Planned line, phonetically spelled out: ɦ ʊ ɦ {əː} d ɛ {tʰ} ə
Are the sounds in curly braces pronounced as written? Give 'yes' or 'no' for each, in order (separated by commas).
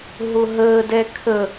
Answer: yes, no